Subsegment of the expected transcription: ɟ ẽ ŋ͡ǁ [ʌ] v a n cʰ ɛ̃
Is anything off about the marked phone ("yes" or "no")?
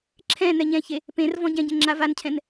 yes